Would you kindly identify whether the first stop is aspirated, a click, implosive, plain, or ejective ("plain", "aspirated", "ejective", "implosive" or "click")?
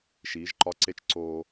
click